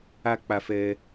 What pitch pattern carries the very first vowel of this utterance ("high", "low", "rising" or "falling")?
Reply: low